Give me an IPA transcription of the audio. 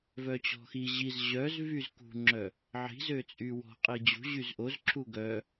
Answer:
vœt͡ɕɔ̤xi ʑiz ʑœzvyzkṳŋ͡ǁœ | ʕi̤zøt͡sʼy wɔ̤qʼi d͡ʑṳ ʑyzʔoz ǁʰuɡœ

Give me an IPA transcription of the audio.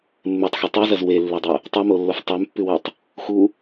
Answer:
mːetˤxo tˤʉzɐz welːedˤo | tˤʉmolːof tˤʉmpːʉwutˤ | xu

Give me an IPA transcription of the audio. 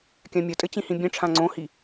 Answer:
kʲãmʲʌtʼɘ t͡ɕĩhĩbʲɛ̃ʈ͡ʂʰã ŋ͡ǀõhi

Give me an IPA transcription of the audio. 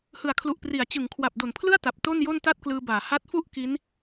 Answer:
hɯ˩˦a̯kʰlu˨˩ʔpri˩˦a̯ t͡ɕɯ˩˦ŋ kʰwa˨˩p̚do˨˩npʰlɯ˥˩a̯ ta˨˩p̚ to˥˩njo˥˩n ta˥˩t̚klɯː˧baː˩˦ ha˦˥t̚fu˥˩ʔ ki˦˥n

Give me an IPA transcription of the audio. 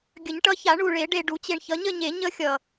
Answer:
ɡʲə˨˩˦ɲʈʌ˨˦ça˨˩˦ ɳu˨˩ɭe˨˩˦ ɖe˨˩ɖu˨˩˦t͡ɕe˨˩ɳ çʌ˨˦ɲə˥˧ɲe˨˩˦ ɲə˦˥xʲʌ˨˩

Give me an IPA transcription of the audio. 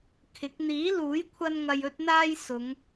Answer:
kʰɪ˨˥k̚ n̪iː˨˥luː˨˥jkʷʰɐ˧n ŋɐ˧jɵ˥t̚n̪aː˥j sʊ˨˧ŋ

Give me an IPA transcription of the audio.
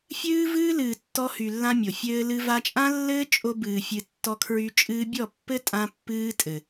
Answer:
fʲɨː˦vɨː˦lɨː˨ tːɔ˧hy˨lːã˧ mʲo˨fʲɘː˦lɨ˦ va˧t͡ʃʼã˦lːɘː˦ t͡ʃʼo˧bɨː˨ fʲɨ˧tːɔ˦kʰɹy˦ t͡ʃʼɨː˧bʲɔ˦˨pːɘ˦tʼã˧ pːɨː˦tʼɘ˨

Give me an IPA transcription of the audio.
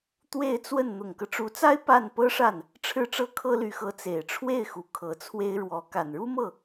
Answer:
t̪we˥˧ɪ̯t͡swə˥˩n n̪ʊ˨˩ŋkɤ˦ʈ͡ʂu˧˥t͡sa˥ɪ̯ pa˥˩n pɤ˥ʂa˥˩n | ʈ͡ʂʰɻ̩˥˧ʈ͡ʂɤ˥˩ kʰɤ˥ly˧˥xɤ˧˥ t͡se˨˩ɪ̯ʈ͡ʂʰwe˥˩ɪ̯xu˨˩ kʰɤ˧˥t͡sʰwe˥ɪ̯ɻwɔ˧˥ ka˨˩nɻu˥mɤ˥˩

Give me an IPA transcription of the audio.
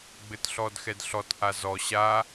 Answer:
ɡ͡bɘtɬɔdxɛdɬɔt ʔazɔ ɕa

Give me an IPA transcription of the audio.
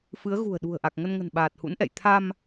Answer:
fɨ˨˦ə̯ɣṳ˨˩ə̯ ɗṳ˨˩ə̯ʔa˨˩k̚ŋə˧nŋə̤˨˩n ɓaː˨˩t̚hṵ˧˥nʔɛ̰˧˨j t̪ʰa˧m

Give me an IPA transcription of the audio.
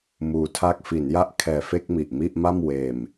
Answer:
muː˧tʰa˥˩k̚ fi˩˦nja˥˩ʔkʰɛː˨˩fe˥˩k̚ mi˨˩ʔmi˥˩ʔma˥˩m weː˨˩m

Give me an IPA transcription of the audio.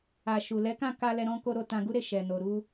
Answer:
a˨ ʃu˨lɛ˨˦kã˦˨ ka˧lɛ˧ɾɔ̃˧ko˧ ɾo˧tã˧ɡu˦ɾe˦˨ ʃɛ˨no˨ɾu˧

